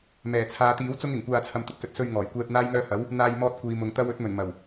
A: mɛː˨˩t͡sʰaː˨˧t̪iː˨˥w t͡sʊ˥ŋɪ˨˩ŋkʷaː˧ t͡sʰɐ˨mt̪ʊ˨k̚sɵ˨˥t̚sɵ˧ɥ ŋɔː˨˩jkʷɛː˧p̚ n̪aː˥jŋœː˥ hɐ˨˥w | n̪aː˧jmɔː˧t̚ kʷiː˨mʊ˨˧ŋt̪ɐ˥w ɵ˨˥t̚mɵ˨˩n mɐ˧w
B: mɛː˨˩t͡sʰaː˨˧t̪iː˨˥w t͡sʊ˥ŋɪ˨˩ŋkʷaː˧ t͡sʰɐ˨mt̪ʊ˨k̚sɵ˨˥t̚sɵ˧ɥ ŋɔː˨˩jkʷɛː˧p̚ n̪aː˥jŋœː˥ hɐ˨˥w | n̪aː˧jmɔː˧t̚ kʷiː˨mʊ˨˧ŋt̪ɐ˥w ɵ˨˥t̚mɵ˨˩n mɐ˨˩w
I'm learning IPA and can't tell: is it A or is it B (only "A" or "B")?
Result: B